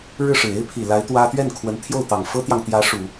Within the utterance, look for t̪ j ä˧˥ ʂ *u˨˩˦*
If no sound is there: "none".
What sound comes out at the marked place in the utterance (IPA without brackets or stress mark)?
u˨˩˦